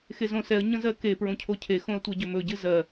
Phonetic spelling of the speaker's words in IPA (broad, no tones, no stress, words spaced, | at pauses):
xezõsɛə̯ ɲə̃zɜke pɹõcʰocʰe xõə̯tʷɛɟɵmɵ ɟɨzɜ